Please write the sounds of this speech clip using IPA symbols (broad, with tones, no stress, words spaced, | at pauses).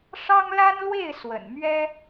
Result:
ʂɑ˥ŋla˥n lwe˥˩ɪ̯ swə̰˨˩n mɥɛ˥